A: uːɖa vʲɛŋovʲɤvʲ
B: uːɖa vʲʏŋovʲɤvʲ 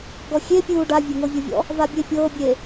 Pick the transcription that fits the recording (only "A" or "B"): A